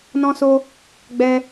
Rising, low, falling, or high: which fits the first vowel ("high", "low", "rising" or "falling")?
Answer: high